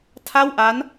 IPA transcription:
tʰa˥˩wʔa˦˥n

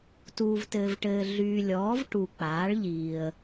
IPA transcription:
tuː˨vtɘː˨vʈɘː˨ ɮyː˨lʲɔː˩˥v ʈu˨ k͡paː˩˥ɭʎiː˨ə̯

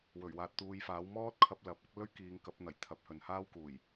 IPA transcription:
wɵ˨˩ɥwaː˨t̚t̪uː˨jfaː˨˥w mɔː˥t̚kʰɐ˧p̚ lɐ˨˥p̚ɐ˥k̚ lɵ˥ɥkiː˨˧ŋkɐ˨˥p̚n̪ɐ˨˩j t̪ʰɐ˨˥p̚ hɵ˨nhaː˥wkuː˨˩j

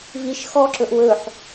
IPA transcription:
viʃ xɔ ǁɵʔwɵħ

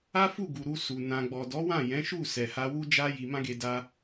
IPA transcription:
a˦fu˦˨ɡu˨ ɾu˧su˨ nã˨ɡ͡bɔ˨ dɔ˨˦wã˦˨jɛ̃˨˦ʃu˦˨ sɛ˨ha˧wu˦ d͡ʒa˦ ji˧mã˦ɡe˧ da˧

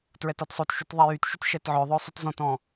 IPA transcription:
tɹɛtɔtsˤotʃut ðˤɛjytʃyt ʃɛtʕœðˤœ sˤutzɔ̃tɔ̃

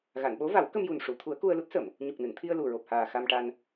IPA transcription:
ɣa˨˩˨nɓo˧˥va˨˩˦w kə˧mju˨˩nʂu˨˩˨ t̪ʰu˨˩˦ə̯ku˧ə̯lu˦˥t̚ sə˨˩˨m | ɲu˨˩k̚nɨ˨˩˨nt̪ʰi˧ə̯lu˨˩ ɹo˨˩p̚haː˨˩ xa˧mʈa˧n

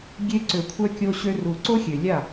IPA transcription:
ɡʲe˧ ǀø˨kʷʰœ˧kʲo˧ɕø˧ ru˨ǀo˦xʲø˨ lʲa˦˨

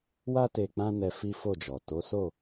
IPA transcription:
wa˦ te˧k͡pã˦nɛ˧ fi˦fo˦˨d͡ʒɔ˨ to˨˦so˦˨

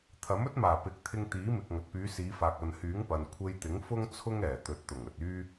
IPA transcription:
t̪ʰɐ˨˥mɵ˥t̚maː˨˩ pɪ˨˥k̚t̪ʰɪ˧ŋ t̪iː˨˥mɪ˨k̚ ŋɐ˨t̚pyː˨˧siː˨˧faː˨k̚ ɐ˨nhyː˨˥ŋ pɐ˨n kʷʰe˧jt̪ɪ˨˥ŋ fʊ˥ŋ t͡sʰʊ˥ŋɛː˨˩t̪ɵ˨t̚t̪ʊ˨˩ŋ ɵ˨t̚yː˥

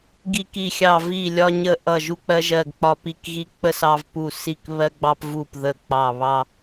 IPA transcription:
ɡi˧ki˧˩xʲɑ˧˩ vi˧˩ lʲɒ˧ɲə˧ ʔʌ˧˩ ʒu˧k͡pɜ˧ʒɜ˧˩ɡ k͡pɒ˧pi˧˩kɣi˧ k͡pə˧s ɑ˧vpu˧˩ si˧˩kβɜ˧ɡ͡bɑ˧pvu˧˩p ðə˧˩k͡pɑ˧˩ βɑ˧

